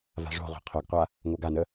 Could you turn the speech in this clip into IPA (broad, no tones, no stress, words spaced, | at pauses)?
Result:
va̤ʐo̤ʁʷa̤ qʰoɡqʷa | ŋoɡanə